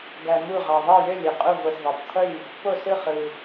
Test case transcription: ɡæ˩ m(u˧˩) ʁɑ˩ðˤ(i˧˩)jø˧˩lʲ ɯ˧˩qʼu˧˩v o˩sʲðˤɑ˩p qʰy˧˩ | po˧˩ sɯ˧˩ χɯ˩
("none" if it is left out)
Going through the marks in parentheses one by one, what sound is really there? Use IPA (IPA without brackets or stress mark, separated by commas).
u˧˩, i˧˩